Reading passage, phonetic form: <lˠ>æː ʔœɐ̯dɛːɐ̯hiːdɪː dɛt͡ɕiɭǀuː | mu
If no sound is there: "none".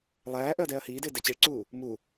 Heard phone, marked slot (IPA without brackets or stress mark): lˠ